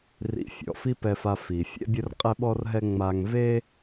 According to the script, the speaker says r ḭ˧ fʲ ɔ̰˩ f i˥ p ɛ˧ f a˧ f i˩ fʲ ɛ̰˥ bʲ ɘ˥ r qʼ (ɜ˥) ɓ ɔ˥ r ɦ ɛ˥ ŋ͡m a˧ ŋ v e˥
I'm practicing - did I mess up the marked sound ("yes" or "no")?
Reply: yes